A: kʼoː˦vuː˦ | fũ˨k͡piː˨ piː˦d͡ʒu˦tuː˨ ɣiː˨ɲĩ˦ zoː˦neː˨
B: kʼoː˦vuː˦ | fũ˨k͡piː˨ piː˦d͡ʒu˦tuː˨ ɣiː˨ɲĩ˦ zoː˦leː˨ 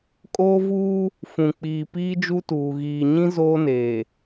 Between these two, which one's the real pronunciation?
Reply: A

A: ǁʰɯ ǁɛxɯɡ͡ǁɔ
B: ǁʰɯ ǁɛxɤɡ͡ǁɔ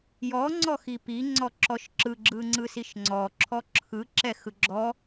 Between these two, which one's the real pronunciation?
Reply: A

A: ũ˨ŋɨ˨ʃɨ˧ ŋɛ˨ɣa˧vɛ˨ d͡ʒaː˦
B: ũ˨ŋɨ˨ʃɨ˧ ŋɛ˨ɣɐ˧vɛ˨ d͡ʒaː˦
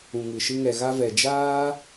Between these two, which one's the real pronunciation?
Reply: A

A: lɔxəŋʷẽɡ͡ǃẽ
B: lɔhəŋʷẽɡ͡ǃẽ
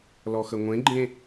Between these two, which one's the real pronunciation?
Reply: A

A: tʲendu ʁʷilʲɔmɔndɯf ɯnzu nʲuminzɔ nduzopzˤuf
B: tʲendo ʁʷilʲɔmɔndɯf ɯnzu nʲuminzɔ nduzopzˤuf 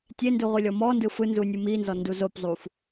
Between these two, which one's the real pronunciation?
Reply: A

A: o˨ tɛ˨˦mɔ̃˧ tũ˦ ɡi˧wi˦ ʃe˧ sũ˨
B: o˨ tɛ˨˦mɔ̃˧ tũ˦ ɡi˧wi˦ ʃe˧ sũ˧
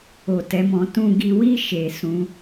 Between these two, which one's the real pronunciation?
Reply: B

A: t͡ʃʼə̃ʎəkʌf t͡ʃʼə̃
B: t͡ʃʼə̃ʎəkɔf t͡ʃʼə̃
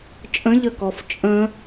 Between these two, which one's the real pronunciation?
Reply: B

